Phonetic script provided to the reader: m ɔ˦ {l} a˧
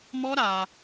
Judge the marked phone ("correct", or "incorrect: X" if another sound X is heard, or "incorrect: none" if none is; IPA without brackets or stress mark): incorrect: ɾ